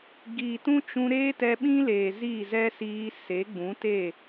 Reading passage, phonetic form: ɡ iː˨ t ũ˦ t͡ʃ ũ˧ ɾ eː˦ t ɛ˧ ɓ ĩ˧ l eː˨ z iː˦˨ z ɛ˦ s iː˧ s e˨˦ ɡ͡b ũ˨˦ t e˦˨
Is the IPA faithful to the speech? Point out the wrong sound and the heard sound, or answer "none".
ĩ˧ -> ĩ˦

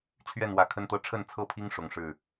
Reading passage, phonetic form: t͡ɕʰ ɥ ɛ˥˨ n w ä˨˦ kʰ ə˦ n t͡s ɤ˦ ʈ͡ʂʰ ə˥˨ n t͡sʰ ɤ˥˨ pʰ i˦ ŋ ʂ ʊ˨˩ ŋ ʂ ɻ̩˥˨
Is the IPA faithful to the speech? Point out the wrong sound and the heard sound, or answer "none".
t͡s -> t̪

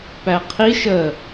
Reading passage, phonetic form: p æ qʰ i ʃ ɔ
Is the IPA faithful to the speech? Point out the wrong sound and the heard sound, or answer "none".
ɔ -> ə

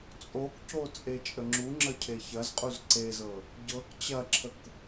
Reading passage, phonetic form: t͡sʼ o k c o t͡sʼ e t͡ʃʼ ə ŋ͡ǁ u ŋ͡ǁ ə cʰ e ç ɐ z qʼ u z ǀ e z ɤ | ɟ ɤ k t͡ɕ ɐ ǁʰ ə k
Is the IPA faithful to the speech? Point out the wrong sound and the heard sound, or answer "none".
none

